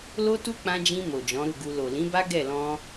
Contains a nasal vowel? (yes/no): yes